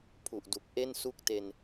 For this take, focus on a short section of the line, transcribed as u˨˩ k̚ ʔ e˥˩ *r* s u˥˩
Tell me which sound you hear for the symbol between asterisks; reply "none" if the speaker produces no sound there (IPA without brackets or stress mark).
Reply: n